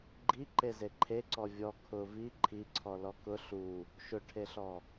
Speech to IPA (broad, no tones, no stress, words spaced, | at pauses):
ɡ͡ǃiǃeze ǃʰeǀɔ vʲɔ kʰʊ vi ǃʰiǀʰɔlɔ kʊ ɬu | ʃʊʈʰeɬɔ